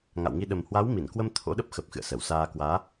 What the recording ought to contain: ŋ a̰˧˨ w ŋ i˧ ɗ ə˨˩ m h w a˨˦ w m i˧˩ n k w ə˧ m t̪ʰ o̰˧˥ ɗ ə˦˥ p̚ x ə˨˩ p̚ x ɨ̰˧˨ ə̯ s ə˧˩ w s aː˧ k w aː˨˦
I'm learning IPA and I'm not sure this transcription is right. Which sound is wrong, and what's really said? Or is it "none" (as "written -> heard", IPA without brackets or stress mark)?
none